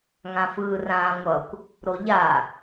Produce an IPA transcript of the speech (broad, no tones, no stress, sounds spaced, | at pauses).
ŋ ã f ɯː r ãː ŋʷ ʌ kʷ | ɾ o ʎ a